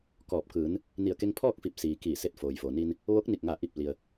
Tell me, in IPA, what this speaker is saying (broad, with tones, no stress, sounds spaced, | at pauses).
k ɔː˧˩ p̚ k ɯː˩˧ n | n i˧˩ ə̯ k e˧ ŋ pʰ ɔː˥˨ k̚ f i˧˩ p̚ s iː˩ k iː˧˩ s e˧ t̚ f oː˩ j f o˩ n i˧ n | ʋ o˧˥ k̚ n i˧˩ k̚ ŋ a˧˩ ʔ i˧˩ p̚ l i˩ ə̯